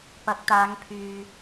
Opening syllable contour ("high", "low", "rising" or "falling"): rising